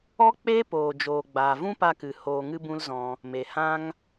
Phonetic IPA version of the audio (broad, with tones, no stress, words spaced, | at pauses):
ɔ˦k͡peː˦poː˨d͡ʒoː˨ ɡ͡baː˨vũ˦pa˧kɨ˨ hoː˧ŋɨ˦bũ˦lzɔ̃˧ | me˨hã˦ŋ